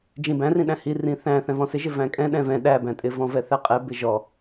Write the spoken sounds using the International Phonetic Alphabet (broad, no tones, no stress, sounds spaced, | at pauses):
d͡ʒ ĩ b æ̃ r ĩ ɗ æ̃ h i r ĩ θ æ̃ θ ɛ̃ v ɔ̃ s ɪ ʒ ɪ v æ̃ kʼ ɛ̃ ɗ ɛ̃ v ɛ̃ ɗ æ b æ̃ tʼ ɪ v ɔ̃ v ɛ θ æ qʼ ɛ b ɪ ʒ ɔ